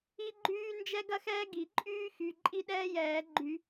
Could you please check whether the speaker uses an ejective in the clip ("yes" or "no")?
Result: yes